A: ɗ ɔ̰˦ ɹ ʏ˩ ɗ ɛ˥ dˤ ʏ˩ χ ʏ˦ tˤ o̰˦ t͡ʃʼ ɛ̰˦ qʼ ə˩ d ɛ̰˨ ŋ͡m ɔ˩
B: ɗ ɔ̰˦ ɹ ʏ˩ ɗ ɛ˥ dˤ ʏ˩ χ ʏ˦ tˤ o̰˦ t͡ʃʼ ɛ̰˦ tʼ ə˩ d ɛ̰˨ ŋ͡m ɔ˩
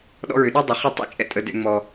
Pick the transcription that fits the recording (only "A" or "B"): B